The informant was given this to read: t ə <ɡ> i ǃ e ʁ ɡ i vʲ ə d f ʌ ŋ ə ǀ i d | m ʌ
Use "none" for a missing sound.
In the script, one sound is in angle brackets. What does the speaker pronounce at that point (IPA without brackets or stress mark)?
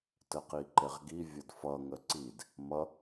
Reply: q